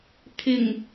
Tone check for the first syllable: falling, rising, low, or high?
low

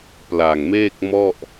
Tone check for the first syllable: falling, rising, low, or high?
low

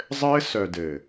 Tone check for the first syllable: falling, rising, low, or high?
high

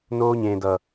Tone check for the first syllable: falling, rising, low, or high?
high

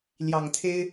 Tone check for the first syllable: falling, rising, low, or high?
low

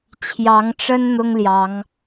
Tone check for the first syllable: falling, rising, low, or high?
rising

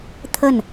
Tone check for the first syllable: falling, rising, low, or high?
falling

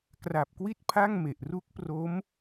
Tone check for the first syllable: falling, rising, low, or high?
low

